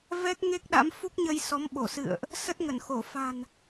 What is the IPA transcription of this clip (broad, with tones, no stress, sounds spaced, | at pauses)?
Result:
v ɛ˦˥ k̚ ŋ e˦˥ k̚ ɗ a̰˧˥ m f u˦˥ k̚ ɲ ə˧ j s ɔ˨˦ m ɓ o˧˩ s ɨ̰˧˨ ə̯ ʔ | s ə˦˥ t̚ ŋ ə˧˩ n x o˧˩ f a̤˨˩ n